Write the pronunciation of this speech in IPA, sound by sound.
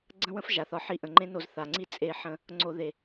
ɡ͡ǀ ə̃˦ w ə̃˦ f ʒ a˨ θ ɒ˧ ħ i˧ ʔ ə̃˨ ŋ͡ǃ ẽ˦ n o˧ z θ a˨ ŋ͡ǀ i˦˨ t͡sʼ e˧ ħ ə̃˧ | ŋ͡ǀ o˧ ð e˨

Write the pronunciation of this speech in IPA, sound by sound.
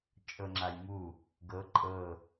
t͡ʃʼ ɤ ŋ͡ǁ a j m u | ɡ ɤ ǃʼ ɤ

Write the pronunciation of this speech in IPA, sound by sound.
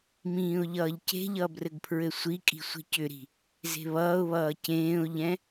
m ĩː ʊ̯ ʎ ʌː ʎ c e̤ ʎ ʌ b r ɘ ɡ pʰ ɹ ɘ sʷ i kʼ i̤ sʷ i̤ c ʏ ɾ i̤ | z e̤ β ʌː ʊ̯ β ʌː c ẽː ʊ̯ ʎ ɛ̃

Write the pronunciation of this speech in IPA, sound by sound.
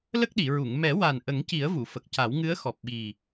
l ə˦˥ k̚ ɗ i˨˩˨ ɹ u˨˩˨ ŋ m ɛ˨˩˦ w a˨˩ n ʔ ə˨˩˦ ŋ c i˨˩˦ ə̯ v u˨˩˨ f ə˨˩ k̚ c a˨˩˦ w ŋ ɨ˧˥ ə̯ x ɔ˨˩ p̚ ɓ i˨˩

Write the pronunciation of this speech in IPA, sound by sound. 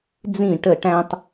d͡z ĩ˦˨ ʈ ə˦˨ ʈ æ̃˥ tˤ

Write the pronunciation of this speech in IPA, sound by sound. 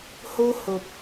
h o˧ h o˨ p̚

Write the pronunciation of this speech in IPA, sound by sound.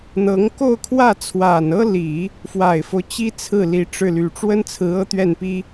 n̪ ɤ˧˥ ŋ k o˥˧ ʊ̯ kʰ w ä˥˩ t͡sʰ w a˨˩ n ɤ˥ l i˨˩˦ | f w a˨˩ ɪ̯ f o˦ ʊ̯ t͡ɕ i˥ t͡sʰ ɹ̩˥˩ l i˧˥ ʈ͡ʂ ɻ̩˥˩ l y˧˥ ʈ͡ʂ w ə˥ n t͡sʰ ɹ̩˧˥ ɤ˥ t̪ ɥ ɛ˥˩ n p i˥

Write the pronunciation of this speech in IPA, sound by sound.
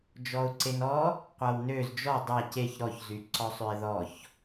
d͡ʒ ɔ ʊ̯ ǀ e n ɔ | qʷ a w n ø z d͡ʒ ɔ dˤ a c e ç ɾ ɔ ç z y ǀ ɔ sˤ ø ɪ̯ ð ɔ ç

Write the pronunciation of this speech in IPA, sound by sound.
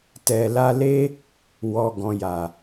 t ɛ˨ l a˧ l e˦ | w ɔ˨ ɡ ɔ̃˨ j a˨

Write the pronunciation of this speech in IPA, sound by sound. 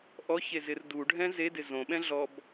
ʔ ɔ ç e z ɪ r d u ɖʱ ɛ̃ z e d ɪ z õ ɓ ɛ̃ ɮ ɔ b

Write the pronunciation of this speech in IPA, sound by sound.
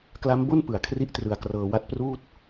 k l a˦˥ m b o˥˩ n p ɯ˨˩ a̯ kʰ r i˥˩ ʔ t r ɯ˧ a̯ k r ɤː˧ w a˦˥ t̚ p r uː˥˩ t̚

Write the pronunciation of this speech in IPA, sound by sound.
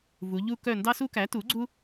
v u˩˧ ʎ u˦ k œ˦˨ n d ɑ˦ s u˦ k æ˩˥ t u˩˥ ɡ͡ǀ u˦

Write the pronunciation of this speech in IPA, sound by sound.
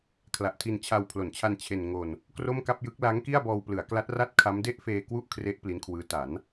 kʰ l a˨˩ ʔ tʰ i˧ n t͡ɕʰ a˧ w pʰ l o˩˦ n t͡ɕʰ a˧ n t͡ɕʰ e˧ n ŋ o˧ n | k r o˥˩ m k a˥˩ p̚ j ɯ˦˥ k̚ l a˦˥ ŋ k i˥˩ a̯ b ɔː˧ w p l ɯ˩˦ a̯ k l a˦˥ t̚ r a˥˩ t̚ kʰ a˦˥ m d e˥˩ ʔ f eː˧ k w u˥˩ ʔ kʰ r e˦˥ ʔ p l i˦˥ n kʰ w ɯː˦˥ t a˩˦ n

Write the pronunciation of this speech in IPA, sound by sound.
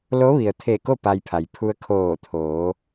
l o˧˥ ʋ i˩ ə̯ t̪ʰ e˧˩ k o˥˨ p a˧ j pʰ a˩ j pʰ u˧ ə̯ kʰ oː˧˩ t̪ʰ oː˩˧

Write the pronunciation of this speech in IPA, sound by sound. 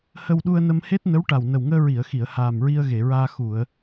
h ə˧ w ɗ u˧ ə̯ n ə˧ m h e˦˥ t̚ n ə˧˥ w ʈ a˨˩ w n ə˨˩ w ŋ əː˧ ɹ i˨˩˨ ə̯ x i˨˩˨ ə̯ h aː˨˩ m ɹ i˧ ə̯ ɣ e˨˩˨ ɹ aː˧ x u˨˩˨ ə̯

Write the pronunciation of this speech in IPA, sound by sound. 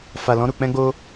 f a˨ l ɔ̃˧ ɾ u˨ k͡p ɛ̃˧ ɡ͡b o˧

